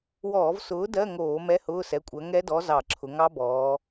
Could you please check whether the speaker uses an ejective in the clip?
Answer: yes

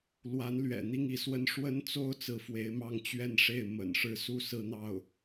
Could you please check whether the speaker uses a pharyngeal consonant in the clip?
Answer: no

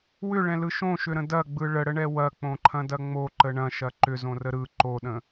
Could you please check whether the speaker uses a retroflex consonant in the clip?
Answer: yes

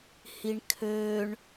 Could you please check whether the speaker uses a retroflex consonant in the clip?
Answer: yes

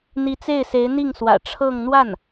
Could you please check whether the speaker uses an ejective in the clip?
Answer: no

